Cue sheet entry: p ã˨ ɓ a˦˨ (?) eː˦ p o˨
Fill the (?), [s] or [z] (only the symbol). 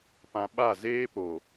z